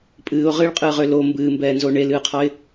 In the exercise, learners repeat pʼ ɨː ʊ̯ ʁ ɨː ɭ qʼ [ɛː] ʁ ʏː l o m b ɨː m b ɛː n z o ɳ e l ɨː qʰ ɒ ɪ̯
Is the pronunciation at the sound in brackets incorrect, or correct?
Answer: incorrect